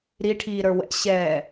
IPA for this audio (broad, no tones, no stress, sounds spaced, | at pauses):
ɾ i ʈʰ iː ɾ ə˞ w ɛ̰ ɕ ɛː